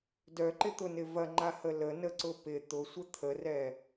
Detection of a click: present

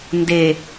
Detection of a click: absent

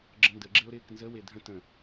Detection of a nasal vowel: present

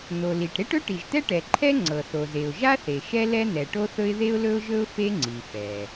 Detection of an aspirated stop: present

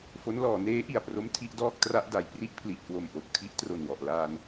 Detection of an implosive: absent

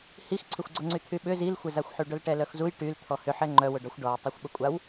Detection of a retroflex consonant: present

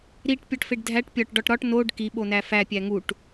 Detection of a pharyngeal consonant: absent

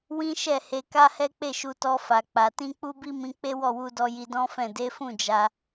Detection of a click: absent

